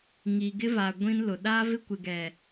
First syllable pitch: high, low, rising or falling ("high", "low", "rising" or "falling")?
low